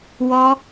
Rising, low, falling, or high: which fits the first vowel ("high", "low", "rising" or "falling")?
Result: high